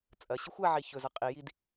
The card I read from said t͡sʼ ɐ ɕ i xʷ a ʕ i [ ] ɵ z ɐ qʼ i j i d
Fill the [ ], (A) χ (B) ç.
B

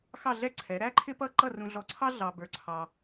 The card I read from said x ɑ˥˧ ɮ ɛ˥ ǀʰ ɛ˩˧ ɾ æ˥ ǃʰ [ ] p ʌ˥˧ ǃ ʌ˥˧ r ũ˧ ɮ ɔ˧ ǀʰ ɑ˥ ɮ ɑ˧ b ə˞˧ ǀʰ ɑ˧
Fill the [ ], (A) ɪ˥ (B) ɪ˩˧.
A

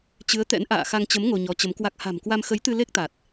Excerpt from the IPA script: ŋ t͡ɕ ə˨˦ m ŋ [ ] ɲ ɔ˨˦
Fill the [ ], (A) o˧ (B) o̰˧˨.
A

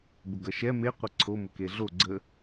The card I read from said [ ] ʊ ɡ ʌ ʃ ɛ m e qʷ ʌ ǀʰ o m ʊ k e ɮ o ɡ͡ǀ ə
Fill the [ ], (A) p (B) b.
B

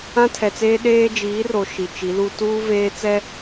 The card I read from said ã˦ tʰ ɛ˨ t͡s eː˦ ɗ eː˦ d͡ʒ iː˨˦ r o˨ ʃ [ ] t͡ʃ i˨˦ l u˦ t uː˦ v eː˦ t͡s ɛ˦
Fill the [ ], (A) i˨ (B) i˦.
A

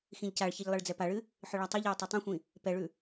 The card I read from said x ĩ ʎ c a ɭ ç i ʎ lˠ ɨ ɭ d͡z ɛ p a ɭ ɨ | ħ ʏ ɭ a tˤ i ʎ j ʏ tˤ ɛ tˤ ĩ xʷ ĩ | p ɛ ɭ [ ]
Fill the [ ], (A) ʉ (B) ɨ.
A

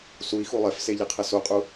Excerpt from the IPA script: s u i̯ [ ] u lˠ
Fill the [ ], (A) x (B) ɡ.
A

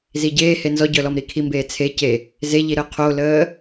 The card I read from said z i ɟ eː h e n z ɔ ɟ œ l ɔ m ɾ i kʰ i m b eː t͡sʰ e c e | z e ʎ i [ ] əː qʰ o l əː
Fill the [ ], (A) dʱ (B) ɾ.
B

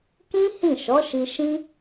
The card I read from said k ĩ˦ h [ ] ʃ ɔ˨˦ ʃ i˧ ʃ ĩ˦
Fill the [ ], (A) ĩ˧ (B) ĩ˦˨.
B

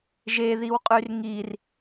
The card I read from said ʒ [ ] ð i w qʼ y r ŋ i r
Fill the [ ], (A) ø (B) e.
B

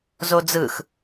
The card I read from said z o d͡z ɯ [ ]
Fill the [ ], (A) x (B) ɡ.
A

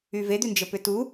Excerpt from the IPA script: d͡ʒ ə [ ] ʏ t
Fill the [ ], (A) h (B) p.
B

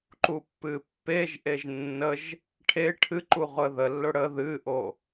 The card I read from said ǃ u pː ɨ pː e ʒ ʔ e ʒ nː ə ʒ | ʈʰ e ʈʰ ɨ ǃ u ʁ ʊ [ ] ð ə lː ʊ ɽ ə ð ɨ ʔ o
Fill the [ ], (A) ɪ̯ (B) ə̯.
B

